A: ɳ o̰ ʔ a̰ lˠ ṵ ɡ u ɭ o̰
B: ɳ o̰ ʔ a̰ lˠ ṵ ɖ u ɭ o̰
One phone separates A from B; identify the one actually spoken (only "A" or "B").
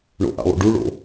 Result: B